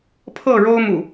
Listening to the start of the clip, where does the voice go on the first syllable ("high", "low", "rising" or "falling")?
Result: falling